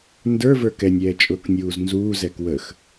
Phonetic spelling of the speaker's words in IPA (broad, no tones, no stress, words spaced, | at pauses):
ndə˞və˞ kɛnʲɛːt͡ʃʼʊːknʲuːz nzuːzɛk wəx